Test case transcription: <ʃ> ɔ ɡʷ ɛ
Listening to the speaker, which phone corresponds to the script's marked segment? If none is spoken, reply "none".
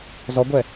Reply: z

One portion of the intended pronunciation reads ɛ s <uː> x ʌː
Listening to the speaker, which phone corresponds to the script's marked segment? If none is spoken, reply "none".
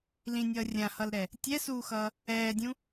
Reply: uː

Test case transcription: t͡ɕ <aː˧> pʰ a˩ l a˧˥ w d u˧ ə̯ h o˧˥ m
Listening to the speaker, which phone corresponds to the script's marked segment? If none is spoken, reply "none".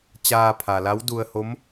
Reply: aː˧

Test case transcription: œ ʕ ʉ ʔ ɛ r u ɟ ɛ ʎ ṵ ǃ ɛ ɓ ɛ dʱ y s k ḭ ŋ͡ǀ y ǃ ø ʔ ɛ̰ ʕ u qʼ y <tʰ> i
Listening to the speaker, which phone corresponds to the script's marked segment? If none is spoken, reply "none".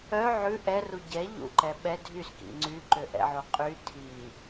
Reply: tʰ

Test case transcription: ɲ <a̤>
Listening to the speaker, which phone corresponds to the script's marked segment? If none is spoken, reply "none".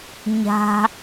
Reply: a̤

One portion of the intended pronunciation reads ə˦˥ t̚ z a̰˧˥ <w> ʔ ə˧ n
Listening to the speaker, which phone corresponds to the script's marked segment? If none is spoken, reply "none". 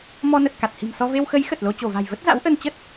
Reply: w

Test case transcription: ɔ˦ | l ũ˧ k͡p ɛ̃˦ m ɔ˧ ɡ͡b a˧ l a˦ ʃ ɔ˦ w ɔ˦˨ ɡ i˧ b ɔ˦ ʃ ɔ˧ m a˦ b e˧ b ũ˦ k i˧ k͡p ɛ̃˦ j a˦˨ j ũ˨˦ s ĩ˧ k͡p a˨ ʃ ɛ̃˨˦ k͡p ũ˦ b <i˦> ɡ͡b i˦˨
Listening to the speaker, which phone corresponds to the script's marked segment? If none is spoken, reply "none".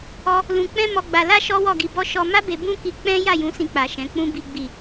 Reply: i˦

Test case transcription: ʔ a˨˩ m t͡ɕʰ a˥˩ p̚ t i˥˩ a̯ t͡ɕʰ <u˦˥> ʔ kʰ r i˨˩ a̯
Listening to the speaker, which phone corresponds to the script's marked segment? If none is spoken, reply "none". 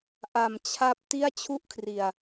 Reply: u˥˩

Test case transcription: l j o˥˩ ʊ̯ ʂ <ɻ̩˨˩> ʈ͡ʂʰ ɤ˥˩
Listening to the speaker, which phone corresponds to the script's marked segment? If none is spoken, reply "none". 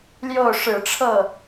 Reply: ɻ̩˨˩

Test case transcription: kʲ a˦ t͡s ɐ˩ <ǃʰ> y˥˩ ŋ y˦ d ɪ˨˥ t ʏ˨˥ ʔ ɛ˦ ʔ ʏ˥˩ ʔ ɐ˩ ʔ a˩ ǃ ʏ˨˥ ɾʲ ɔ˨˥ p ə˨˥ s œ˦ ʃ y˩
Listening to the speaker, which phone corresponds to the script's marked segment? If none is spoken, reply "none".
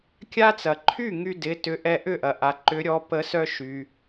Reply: ǃʰ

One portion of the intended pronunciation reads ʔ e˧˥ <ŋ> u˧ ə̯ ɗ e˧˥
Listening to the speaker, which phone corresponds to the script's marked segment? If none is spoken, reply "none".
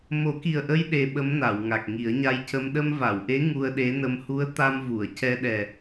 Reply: ŋ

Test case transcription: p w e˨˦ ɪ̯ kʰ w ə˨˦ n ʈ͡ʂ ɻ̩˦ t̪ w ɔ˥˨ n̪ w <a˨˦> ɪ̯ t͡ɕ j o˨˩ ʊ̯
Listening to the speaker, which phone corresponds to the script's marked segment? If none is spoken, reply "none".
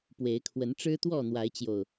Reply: a˨˦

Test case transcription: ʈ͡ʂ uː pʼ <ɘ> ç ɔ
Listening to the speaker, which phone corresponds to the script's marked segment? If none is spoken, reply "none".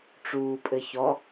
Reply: ɘ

